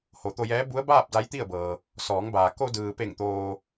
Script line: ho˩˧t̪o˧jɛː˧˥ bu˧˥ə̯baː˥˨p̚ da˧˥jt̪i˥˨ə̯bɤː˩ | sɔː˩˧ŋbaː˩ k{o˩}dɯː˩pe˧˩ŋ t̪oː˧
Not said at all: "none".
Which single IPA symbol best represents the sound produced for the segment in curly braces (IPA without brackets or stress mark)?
o˧